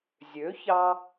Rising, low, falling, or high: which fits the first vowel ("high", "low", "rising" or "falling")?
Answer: rising